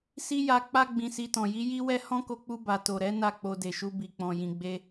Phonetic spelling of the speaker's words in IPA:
s i˦ j a˧ k͡p a˦ ɡ͡b ĩ˧ s i˧ t ɔ̃˨ j i˨˦ j i˦ w ɛ˦ h ɔ̃˦ k o˧ k͡p u˧ b a˨ t o˨ ɾ ɛ˨˦ n a˦˨ k͡p o˧ d e˨ ʃ u˧ b i˨ k͡p ɔ̃˨ j ĩ˨ ɡ͡b e˧

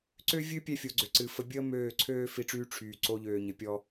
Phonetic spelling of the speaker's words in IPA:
ǀ ø˦ vʲ ɨ˦ pʲ ɛ˧ fʲ o˨ ɡ͡ǀ ø˨ ǀ ɨ˨ f ə˧ bʲ əː˦ m øː˦˨ ǀʰ øː˦ f i˨˦ ʈ͡ʂ yː˧ ʈ͡ʂʰ yː˨ ǀ o˧ ʎ øː˨ ɲ ɘ˨˦ pʲ ɔ˦

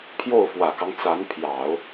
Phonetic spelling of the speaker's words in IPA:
pʰ j o˥˩ ʊ̯ f w ä˨˩ k ɑ˦ ŋ t͡s a˧˥ n pʰ j ɑ˨˩˦ ʊ̯

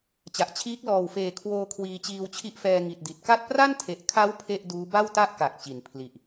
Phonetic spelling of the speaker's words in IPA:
t͡ɕ a˨˩ ʔ t͡ɕʰ iː˦˥ k̚ l ɔː˨˩ w f eː˨˩ kʰ w oː˧ kʰ w iː˧ t͡ɕ iː˧ w t͡ɕʰ i˦˥ ʔ f ɛː˧ ŋ i˨˩ t̚ d i˨˩ t̚ k a˥˩ t̚ p r a˥˩ n tʰ e˨˩ ʔ kʰ a˦˥ w pʰ e˥˩ ʔ d uː˦˥ b a˥˩ w t a˥˩ ʔ k a˨˩ k̚ t͡ɕ i˩˦ n pʰ l i˨˩ ʔ

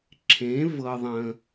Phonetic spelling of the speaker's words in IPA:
ǁʰ ẽ˨˥ v ɤ˧ ðˤ ə̃˧

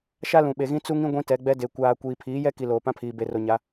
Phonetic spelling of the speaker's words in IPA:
ʃ a˦ l ũ˨ ɓ e˨ ɣ ĩ˦ t͡s u˦ ŋ ĩ˦ ɡʷ ĩ˦ t ɛ˨˦ ɡ͡b ɛ˦ d e˨ kʷ aː˨ kʷ iː˨ pʰ iː˨˦ j ɛ˦ k i˨ l oː˨ p ã˦ pʰ iː˨ b e˨ r o˨ ɲ a˨˦

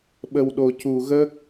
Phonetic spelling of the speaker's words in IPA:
ɓ ə˨˩ w ɗ o˨˩ c u˨˩ ɣ ə˦˥ k̚

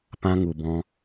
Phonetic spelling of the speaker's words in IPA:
p ã˧ ŋ u˨ b ɔ̃˧

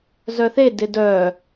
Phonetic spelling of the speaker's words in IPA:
z œ θ e d ɪ d œ

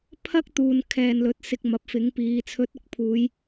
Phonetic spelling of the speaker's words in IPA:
pʰ ɐ˥ k̚ t̪ uː˨ n kʰ ɛː˨ n l ɵ˨˥ t̚ s ɪ˧ k̚ m ɐ˨˥ p̚ f ɪ˨˥ ŋ p iː˨˧ t͡sʰ ɵ˨˥ t̚ ʊ˨ k̚ pʰ uː˨˧ j

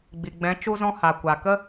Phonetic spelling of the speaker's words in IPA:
ɡ͡b i˨ ɡ͡b ɛ̃˨˦ t͡ʃ u˦ z ɔ̃˦ h a˨ kʷ a˨ k ə˦

